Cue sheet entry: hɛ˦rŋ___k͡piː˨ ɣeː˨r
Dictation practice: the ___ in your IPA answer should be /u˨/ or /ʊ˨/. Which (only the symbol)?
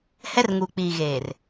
u˨